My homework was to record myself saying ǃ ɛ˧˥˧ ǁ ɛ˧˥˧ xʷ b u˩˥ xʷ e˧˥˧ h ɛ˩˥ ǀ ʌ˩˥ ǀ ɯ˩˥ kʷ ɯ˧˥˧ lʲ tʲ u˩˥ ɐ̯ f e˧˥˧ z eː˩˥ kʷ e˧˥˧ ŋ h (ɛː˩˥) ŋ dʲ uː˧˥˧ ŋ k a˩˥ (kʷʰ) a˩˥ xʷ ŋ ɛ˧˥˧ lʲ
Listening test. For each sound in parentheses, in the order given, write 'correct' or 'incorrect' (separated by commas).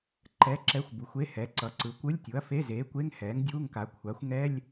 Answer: correct, correct